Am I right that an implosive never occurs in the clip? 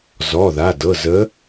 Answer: yes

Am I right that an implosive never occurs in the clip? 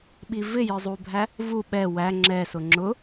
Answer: no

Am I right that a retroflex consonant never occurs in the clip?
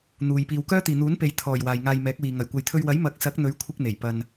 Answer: yes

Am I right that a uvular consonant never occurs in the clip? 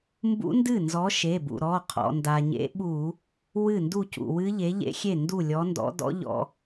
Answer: no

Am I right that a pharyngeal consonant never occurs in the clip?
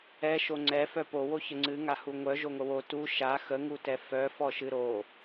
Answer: yes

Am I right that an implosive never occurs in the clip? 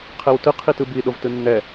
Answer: no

